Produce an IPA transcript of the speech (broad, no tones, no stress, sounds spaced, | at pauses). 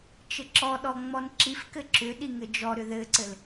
t͡ʃ ɘ ǁ ɔ ɗ ɔ ŋ͡m ɔ n ǁ i f k ɘ ǁ ʏ ɗ i ŋ ɘ d͡ʒ ɔ ɾ ʏ ð ɘ ǀ ɘ l